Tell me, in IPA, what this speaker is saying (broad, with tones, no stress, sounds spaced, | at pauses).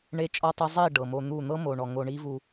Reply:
ɳ e˦ t͡ʃʼ ɔ˦ tˤ ɤ˦ zˤ i˦˨ ɖ ɤ˨ m o˧ n̪ u˦˨ n̪ ɤ˦ m o˨ ɳ ɔ˨ ŋ o˧ ɳ i˦ v u˧